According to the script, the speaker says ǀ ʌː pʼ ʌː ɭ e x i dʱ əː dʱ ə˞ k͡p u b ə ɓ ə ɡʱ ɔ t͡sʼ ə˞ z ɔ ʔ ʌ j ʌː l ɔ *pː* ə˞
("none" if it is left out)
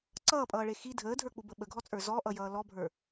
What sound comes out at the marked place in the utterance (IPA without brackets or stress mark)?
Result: bʱ